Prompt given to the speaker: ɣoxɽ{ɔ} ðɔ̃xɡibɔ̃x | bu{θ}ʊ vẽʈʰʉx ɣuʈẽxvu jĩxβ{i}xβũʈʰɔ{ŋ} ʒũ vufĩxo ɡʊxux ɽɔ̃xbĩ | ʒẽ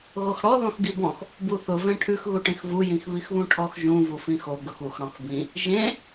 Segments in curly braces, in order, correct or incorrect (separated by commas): correct, correct, correct, incorrect